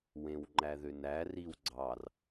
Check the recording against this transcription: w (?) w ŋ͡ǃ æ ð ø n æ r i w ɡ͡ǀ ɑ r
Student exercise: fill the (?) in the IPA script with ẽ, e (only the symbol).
ẽ